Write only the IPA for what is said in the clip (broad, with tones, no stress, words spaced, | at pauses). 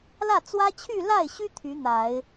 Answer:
lä˥˩t͡swä˥ t͡ɕʰy˥˧la˥˩ɪ̯ɕy˥ t̪ʰy˧˥n̪a˨˩˦ɪ̯